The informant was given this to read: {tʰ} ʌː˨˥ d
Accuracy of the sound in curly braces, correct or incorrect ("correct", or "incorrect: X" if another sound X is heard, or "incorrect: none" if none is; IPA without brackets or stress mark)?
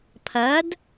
incorrect: pʰ